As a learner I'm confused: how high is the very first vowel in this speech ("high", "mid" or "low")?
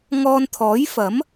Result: mid